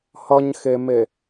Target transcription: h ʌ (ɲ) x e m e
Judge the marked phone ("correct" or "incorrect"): correct